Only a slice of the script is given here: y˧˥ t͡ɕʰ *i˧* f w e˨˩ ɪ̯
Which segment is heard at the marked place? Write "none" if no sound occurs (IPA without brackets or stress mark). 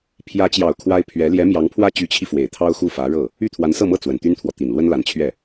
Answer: i˧